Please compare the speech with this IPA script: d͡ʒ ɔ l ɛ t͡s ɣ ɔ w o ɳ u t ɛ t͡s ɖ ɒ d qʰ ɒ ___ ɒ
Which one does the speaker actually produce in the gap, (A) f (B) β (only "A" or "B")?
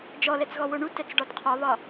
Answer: B